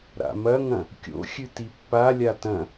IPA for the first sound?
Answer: ɾ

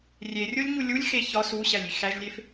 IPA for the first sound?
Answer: rʲ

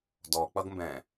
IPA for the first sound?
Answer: d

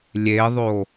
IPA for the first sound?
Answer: lʲ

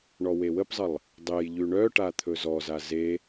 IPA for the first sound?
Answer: ɳ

